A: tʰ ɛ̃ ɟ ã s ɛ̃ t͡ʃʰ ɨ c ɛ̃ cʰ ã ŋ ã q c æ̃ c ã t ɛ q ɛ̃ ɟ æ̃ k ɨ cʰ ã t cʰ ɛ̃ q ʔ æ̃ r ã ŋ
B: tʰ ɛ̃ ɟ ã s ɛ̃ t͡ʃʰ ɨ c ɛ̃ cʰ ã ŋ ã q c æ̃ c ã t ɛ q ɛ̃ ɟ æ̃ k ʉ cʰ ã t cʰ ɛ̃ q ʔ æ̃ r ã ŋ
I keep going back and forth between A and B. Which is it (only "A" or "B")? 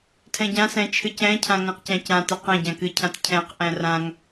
A